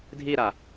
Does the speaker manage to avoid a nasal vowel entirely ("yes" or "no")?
yes